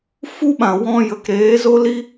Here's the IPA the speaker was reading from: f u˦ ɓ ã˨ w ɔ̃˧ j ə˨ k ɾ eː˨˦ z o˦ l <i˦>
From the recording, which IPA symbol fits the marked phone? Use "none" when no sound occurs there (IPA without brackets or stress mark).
i˦